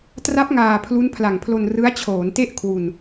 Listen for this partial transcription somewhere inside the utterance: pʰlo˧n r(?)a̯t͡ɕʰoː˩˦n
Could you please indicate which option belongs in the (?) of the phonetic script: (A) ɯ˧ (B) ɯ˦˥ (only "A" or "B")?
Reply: B